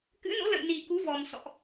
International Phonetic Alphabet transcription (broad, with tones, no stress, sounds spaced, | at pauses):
k ɨ̰˧˥ n o̰˧˥ l ə̰˧˨ j n i˨˩ k u˨˦ v ɔ˨˩ m s ɔ̰˧˨ ʔ